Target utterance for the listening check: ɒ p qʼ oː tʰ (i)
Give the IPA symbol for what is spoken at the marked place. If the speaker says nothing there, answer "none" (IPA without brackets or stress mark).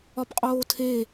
e